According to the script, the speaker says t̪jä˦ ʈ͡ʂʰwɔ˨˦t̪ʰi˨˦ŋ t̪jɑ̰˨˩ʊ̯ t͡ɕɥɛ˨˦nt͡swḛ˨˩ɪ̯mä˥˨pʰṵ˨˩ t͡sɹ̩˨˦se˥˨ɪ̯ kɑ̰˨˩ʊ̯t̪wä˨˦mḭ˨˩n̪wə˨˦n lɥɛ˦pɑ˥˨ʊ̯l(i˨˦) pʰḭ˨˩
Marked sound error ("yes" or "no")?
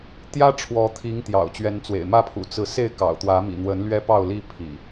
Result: yes